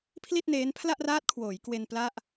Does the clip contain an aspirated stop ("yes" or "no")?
yes